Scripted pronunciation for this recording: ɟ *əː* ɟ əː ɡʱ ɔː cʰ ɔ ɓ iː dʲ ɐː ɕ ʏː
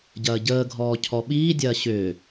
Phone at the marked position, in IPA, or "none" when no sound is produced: ɐː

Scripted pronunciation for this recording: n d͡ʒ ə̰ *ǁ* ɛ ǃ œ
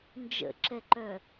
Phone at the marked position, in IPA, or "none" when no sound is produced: ǁ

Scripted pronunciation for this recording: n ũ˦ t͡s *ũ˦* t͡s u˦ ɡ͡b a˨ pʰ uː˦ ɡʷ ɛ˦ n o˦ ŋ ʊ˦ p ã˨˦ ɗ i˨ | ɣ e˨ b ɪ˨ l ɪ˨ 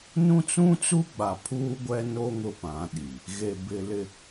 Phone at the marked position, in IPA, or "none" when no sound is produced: ũ˦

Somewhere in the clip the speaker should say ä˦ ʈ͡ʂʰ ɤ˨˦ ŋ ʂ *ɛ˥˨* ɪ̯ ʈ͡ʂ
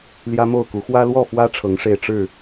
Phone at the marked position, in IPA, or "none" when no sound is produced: e˥˨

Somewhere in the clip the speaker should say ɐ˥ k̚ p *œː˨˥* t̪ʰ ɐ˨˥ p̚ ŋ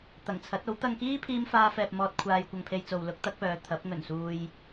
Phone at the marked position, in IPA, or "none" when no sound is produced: œː˨˧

